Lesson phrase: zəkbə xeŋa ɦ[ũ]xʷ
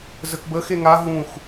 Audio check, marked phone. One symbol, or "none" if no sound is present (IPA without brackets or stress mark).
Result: ũ